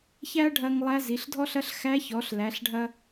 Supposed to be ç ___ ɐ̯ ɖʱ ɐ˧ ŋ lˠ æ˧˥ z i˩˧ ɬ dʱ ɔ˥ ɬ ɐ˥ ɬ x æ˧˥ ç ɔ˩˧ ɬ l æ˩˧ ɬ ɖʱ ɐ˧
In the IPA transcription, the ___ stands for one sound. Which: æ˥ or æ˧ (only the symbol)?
æ˥